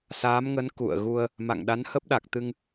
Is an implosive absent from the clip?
no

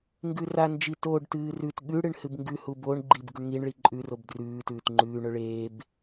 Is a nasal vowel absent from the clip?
yes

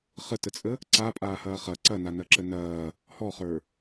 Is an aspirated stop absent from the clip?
yes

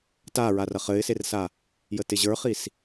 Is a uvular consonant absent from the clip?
no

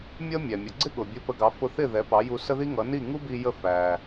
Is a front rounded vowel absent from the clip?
yes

